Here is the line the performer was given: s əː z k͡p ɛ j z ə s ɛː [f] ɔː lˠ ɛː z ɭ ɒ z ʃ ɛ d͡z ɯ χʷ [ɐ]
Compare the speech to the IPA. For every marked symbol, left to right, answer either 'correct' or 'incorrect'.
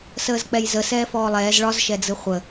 correct, incorrect

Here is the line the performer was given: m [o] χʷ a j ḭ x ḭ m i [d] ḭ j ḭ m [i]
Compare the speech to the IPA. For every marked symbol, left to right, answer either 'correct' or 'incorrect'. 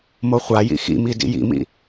correct, correct, incorrect

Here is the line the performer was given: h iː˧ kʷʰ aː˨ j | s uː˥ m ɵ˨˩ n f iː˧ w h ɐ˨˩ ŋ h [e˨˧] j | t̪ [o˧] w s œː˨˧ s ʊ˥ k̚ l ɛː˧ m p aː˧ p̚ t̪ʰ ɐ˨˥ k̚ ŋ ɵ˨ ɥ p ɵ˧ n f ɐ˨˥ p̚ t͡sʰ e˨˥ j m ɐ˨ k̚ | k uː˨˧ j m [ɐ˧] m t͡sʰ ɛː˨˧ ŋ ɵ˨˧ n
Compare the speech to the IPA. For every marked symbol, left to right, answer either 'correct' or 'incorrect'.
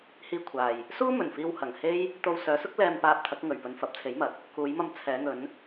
incorrect, correct, correct

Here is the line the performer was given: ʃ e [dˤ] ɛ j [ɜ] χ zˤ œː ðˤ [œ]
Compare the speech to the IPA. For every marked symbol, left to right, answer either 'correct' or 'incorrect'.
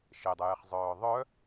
correct, incorrect, correct

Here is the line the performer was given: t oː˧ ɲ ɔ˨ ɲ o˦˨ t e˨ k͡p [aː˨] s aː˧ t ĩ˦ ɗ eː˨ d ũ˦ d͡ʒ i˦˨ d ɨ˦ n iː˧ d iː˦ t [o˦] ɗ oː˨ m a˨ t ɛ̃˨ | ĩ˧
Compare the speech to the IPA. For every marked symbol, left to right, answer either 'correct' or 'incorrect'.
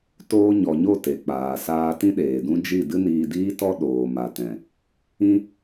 correct, incorrect

